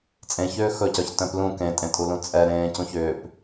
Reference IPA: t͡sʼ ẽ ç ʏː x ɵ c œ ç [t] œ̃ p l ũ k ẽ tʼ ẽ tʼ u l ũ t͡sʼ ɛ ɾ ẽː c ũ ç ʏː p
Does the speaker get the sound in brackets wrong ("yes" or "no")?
no